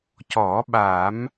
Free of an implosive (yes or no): no